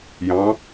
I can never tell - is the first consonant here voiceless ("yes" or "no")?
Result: no